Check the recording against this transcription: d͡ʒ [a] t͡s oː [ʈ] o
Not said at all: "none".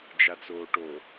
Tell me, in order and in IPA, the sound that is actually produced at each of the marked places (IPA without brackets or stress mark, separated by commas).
a, ʈ